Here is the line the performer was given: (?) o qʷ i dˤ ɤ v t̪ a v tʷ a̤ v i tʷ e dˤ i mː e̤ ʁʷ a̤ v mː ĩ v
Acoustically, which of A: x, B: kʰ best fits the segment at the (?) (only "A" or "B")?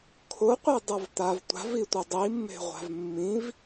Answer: B